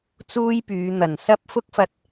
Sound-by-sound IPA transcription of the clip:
t͡s uː˥ j p yː˨˧ n̪ ɐ˨˩ n s ɐ˥ p̚ f ʊ˥ k̚ f ɐ˧ t̚

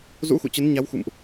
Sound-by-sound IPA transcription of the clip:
z ṵ˧˥ x ṵ˧˨ t͡ɕ ə˨˦ n ɲ a˨˦ w x ṵ˧˨ m ʔ

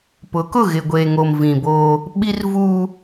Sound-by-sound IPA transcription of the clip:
p ʊ˨˦ k ʊ˦˨ ɣ ɪ˨ ɡʷ eː˨ ŋ o˨ m v ĩ˨ b oː˦ | ɓ i˦ r v uː˦

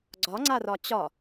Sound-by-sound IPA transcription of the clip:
ɡ͡ǀ ɒ ŋ͡ǀ a r ɒ t͡ɕ ɒ

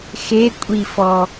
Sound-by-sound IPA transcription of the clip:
x e kʷʼ i f ɔ

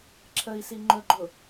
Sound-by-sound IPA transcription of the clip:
ǁʰ ə i̯ s i ŋ͡ǃ ɵ ɡ͡ǃ ʊ

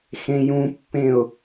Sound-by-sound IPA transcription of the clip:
x ẽ j ũ pː ẽ ʊ̯

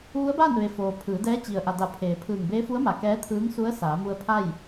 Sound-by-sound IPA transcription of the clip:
ʋ u˧˥ ə̯ b aː˥˨ n ʋ e˩ f oː˩ pʰ ɯː˩˧ d ɛː˧˥ t͡ɕ i˩ ə̯ ʔ a˩ d a˧˩ pʰ eː˩ pʰ ɯː˧˩ ŋ b eː˧˥ f u˧˥ ə̯ m a˩˧ k ɛː˧˥ t̪ʰ ɯː˧˥ ŋ s u˧˥ ə̯ s aː˩˧ m u˧ ə̯ pʰ a˥˨ j

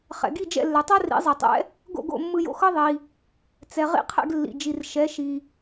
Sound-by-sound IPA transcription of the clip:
χ ɛ̰˩ ɡ i˥˩ d͡ʒ ɛ̰˥˩ lː ɛ˩ tˤ a˥ r ḭ˩˥ zˤ ɛ˩ tˤ ɛ̰˩˥ | ɡ o̰˥˩ ɡ o̰˥˩ mː ɯ˧ j o̰˧ x ɤ˥ ðˤ i˩ | t͡s ɛ˩ ʁ ḭ˧ qʰ ɛ̰˥˩ ɡ lː ḭ˩ d͡ʒ i˩ r ʃ ɛ˩˥ ʃ i˩

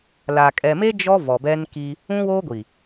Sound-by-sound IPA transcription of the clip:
l a˨ kʼ ɛ˨ m e˦ d͡ʒ ɔ˦ v ɔ˨ b ɛ˦ n k i˦ | ũ˦ w oː˦ ɡʷ i˨

